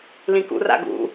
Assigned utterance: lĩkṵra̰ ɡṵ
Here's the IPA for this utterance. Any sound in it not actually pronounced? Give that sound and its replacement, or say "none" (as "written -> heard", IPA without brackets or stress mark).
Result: none